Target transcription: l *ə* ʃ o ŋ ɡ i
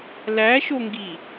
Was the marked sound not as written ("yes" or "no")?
yes